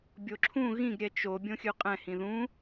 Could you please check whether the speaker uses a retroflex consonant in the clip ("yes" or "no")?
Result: no